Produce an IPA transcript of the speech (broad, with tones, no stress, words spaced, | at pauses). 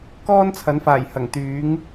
kɔː˥nt͡sʰɐ˨˥nfaː˨˩j hɐ˨˩ŋt̪yː˨˥ŋ